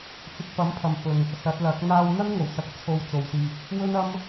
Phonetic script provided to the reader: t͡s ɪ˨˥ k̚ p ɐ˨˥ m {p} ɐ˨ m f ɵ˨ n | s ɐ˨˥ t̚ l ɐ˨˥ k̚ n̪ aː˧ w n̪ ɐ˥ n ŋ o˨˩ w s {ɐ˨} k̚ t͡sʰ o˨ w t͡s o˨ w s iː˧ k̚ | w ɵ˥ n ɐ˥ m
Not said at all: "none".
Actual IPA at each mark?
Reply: pʰ, ɐ˨

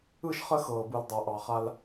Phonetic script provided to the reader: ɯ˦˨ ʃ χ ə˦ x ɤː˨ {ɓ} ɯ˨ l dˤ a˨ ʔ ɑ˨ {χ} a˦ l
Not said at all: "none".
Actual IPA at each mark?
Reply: b, χ

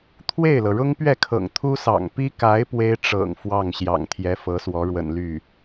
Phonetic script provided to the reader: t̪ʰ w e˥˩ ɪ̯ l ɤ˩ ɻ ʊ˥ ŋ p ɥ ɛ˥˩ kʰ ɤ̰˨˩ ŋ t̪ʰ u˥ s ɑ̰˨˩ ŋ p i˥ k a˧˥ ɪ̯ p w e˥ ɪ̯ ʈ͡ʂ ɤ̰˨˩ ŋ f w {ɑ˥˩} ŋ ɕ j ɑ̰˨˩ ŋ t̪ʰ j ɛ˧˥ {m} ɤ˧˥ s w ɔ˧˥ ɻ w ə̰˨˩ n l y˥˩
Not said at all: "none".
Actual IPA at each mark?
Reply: ɑ˥˩, f

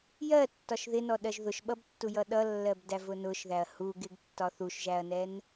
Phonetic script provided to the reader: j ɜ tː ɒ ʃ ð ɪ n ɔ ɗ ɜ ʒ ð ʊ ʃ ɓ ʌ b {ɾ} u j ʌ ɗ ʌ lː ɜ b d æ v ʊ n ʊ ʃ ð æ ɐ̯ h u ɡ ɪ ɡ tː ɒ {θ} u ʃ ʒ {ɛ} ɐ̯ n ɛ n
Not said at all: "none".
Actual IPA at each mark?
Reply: tː, θ, æ

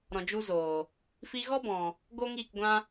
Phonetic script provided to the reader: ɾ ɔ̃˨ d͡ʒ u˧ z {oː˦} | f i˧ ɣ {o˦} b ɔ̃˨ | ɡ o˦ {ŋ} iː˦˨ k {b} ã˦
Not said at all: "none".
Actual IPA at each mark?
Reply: oː˨, ɔ˦, ŋ, ɡʷ

